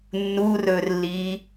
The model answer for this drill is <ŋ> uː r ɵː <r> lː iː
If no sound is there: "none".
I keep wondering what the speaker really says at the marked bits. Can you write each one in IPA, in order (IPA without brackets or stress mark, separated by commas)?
nː, r